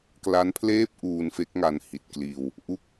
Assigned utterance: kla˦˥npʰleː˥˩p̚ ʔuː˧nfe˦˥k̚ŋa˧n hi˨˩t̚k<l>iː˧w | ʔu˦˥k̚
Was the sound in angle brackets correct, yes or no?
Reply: yes